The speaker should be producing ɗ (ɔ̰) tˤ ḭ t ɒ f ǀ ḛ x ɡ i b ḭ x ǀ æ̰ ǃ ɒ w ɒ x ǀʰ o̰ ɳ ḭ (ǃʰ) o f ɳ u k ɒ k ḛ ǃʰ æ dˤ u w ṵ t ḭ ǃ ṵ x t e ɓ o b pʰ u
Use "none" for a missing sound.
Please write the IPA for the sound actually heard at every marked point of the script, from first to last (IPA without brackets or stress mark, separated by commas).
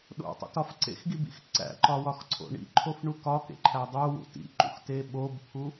o̰, ǃʰ